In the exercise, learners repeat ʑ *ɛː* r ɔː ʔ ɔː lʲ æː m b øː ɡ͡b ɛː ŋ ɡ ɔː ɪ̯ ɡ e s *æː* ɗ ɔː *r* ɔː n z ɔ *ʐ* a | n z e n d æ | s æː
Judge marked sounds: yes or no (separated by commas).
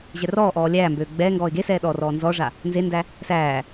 no, no, yes, yes